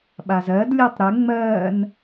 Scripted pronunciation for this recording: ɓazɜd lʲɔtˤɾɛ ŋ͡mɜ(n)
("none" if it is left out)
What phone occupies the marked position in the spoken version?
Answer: n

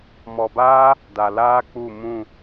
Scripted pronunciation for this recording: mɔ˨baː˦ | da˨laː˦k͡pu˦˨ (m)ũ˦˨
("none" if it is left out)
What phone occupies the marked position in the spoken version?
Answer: m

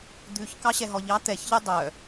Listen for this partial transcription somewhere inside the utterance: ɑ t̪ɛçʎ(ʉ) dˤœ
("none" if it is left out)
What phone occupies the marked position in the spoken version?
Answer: ø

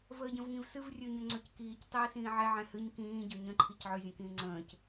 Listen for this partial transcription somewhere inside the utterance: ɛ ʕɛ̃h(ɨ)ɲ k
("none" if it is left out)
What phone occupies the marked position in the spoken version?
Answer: ɨ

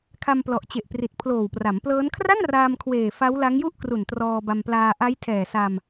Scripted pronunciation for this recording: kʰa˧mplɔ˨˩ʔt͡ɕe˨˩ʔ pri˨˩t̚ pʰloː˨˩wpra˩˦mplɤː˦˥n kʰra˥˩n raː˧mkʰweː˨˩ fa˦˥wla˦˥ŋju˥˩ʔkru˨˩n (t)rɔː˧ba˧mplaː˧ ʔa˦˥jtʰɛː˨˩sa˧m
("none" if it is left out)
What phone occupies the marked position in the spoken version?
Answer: t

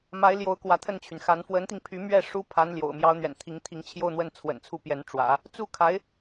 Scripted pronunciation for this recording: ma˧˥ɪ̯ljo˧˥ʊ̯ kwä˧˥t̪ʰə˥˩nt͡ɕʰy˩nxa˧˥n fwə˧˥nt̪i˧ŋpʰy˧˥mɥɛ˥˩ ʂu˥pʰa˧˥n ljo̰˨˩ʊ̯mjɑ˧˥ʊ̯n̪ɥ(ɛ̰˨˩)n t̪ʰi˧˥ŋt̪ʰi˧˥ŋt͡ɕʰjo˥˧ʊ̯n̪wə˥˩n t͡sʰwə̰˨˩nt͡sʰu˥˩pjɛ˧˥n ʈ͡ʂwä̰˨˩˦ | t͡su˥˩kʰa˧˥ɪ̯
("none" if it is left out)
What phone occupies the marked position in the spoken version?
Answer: ɛ̰˨˩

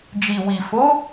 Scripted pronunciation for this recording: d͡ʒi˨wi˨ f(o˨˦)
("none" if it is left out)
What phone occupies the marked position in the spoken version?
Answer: o˨˦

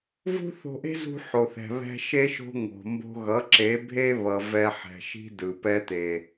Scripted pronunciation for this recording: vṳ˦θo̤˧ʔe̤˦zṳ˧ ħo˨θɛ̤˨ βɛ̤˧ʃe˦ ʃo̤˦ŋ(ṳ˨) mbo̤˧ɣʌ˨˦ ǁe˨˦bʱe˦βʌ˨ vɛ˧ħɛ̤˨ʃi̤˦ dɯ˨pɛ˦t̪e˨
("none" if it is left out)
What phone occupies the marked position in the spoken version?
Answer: o̤˨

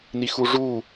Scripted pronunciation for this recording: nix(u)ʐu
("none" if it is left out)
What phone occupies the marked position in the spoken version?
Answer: u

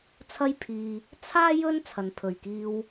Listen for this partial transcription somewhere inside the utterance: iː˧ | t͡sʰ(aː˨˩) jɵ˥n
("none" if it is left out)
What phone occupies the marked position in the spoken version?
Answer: aː˥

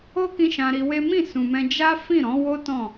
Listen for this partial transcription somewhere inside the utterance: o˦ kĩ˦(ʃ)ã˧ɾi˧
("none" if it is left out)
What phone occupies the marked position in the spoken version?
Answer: ʃ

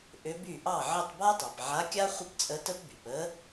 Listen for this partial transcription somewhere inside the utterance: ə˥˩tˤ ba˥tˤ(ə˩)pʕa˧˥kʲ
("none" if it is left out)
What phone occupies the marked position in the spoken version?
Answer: ɑ˩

